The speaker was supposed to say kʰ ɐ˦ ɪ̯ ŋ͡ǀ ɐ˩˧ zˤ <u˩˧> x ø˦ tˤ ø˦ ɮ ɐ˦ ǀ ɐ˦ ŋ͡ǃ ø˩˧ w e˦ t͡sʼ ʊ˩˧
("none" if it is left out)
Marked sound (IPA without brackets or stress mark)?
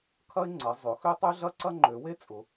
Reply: ʊ˩˧